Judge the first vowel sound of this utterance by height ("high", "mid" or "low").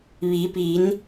high